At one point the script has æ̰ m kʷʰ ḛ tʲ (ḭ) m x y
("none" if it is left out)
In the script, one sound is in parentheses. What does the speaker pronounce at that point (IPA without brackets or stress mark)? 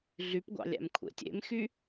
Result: ḛ